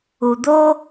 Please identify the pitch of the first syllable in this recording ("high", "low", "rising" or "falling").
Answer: low